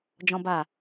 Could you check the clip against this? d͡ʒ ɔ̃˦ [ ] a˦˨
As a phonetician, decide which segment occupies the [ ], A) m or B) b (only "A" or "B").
B